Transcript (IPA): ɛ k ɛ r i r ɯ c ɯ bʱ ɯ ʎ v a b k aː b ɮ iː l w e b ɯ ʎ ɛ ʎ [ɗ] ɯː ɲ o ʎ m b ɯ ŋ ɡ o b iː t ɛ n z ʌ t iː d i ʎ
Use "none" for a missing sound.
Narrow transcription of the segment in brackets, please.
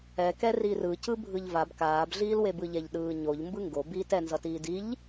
ɗ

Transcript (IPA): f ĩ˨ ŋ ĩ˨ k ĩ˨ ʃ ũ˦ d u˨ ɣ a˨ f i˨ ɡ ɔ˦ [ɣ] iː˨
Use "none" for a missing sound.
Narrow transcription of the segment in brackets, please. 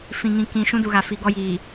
j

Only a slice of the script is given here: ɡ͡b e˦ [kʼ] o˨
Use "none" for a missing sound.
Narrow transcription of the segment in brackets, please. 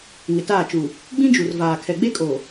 kʼ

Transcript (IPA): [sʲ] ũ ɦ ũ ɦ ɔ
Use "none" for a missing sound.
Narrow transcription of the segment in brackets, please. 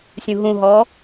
sʲ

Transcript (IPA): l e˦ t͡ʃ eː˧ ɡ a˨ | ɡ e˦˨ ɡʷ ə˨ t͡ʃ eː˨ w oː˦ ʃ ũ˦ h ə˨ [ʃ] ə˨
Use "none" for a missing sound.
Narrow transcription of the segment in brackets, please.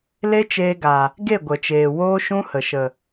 ʃ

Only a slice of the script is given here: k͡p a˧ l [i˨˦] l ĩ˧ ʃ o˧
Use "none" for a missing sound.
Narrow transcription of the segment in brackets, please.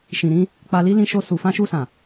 i˦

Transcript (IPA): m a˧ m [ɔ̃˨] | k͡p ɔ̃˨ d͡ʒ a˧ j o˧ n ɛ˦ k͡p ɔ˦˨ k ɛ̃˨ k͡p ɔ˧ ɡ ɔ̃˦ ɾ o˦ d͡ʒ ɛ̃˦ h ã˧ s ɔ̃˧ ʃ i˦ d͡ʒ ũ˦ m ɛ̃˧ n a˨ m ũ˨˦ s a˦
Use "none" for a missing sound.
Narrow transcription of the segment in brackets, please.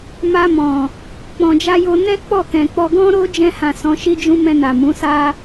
ɔ̃˨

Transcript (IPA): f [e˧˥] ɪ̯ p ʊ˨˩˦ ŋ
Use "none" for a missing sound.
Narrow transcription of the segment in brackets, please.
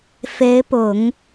e˧˥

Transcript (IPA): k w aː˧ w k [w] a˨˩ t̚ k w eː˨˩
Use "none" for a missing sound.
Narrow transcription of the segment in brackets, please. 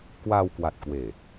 w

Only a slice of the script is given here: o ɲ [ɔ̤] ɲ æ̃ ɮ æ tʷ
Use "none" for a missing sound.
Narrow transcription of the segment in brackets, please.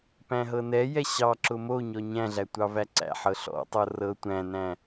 ɔ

